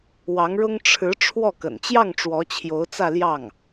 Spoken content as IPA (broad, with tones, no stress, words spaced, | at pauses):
wɑ˧˥ŋɻʊ˥ŋ ʈ͡ʂʰɻ̩˧˥ ʈ͡ʂʰwɔ˥˩kə̰˨˩n t͡ɕjɑ˥˩ŋ ʈ͡ʂwɔ˧˥t͡ɕʰjo˧˥ʊ̯t͡sä˥˧ljɑ˥˩ŋ